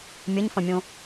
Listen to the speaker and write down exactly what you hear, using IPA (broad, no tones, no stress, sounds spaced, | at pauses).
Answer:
mʲ ɐ ɲ f ɐ̃ mʲ õ